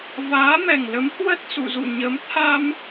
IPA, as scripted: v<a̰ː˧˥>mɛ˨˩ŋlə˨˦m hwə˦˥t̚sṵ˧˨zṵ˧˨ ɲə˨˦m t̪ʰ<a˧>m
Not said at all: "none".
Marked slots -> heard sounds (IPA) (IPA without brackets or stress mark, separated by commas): aː˨˦, a˧